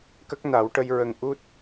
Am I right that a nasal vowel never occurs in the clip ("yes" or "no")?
yes